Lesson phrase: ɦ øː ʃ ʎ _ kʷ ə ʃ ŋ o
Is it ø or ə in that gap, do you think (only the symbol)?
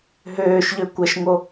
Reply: ø